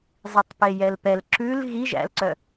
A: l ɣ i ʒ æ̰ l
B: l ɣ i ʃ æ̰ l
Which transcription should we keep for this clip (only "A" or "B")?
A